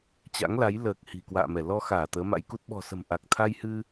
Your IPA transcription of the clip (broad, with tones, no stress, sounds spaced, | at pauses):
t͡ɕ a̰˧˥ ŋ l a˨˦ j l əː˨˩ k̚ h i̤˨˩ k w a̰ː˧˨ m ɛ˧˩ l ɔ˧ x aː˧˩ t̪ əː˨˦ m a̰˧˥ j k u˦˥ t̚ ɓ ɔ̤˨˩ s ə̤˨˩ m ʔ a˨˩ k̚ t̪ʰ a˧ j h ɨ˧